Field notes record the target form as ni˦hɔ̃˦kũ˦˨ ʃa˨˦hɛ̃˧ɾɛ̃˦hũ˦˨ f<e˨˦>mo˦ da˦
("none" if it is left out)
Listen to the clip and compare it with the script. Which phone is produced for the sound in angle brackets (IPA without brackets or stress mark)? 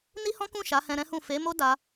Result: e˨˦